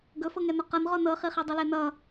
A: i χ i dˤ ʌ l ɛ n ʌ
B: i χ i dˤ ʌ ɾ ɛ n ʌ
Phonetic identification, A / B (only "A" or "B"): A